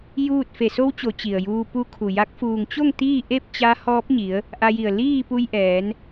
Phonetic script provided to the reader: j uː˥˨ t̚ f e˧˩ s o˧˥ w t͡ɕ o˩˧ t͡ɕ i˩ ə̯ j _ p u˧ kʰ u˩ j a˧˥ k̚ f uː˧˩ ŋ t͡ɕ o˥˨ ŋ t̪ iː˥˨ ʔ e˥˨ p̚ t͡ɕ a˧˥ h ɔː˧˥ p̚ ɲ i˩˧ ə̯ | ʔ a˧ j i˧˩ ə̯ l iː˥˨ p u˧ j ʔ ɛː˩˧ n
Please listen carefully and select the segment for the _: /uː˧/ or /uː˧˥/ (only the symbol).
uː˧